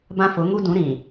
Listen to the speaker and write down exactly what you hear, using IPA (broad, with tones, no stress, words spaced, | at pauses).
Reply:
bã˦fʊ˨˦ŋu˦dũ˨˦ ɾĩ˨